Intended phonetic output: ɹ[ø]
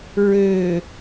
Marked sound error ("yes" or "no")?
no